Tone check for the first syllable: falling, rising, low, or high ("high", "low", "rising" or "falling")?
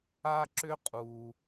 high